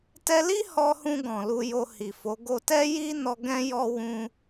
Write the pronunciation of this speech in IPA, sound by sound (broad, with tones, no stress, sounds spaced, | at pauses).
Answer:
t ɛ˧ l i˦ h ɔ˧ h ũ˧ ɡ ɔ̃˨ l u˧ j o˧ h i˨ f o˨˦ ɡ o˧ t ɛ˦ j i˦ n ɔ˧ ɡ ɛ̃˧ j ɔ˧ w ũ˦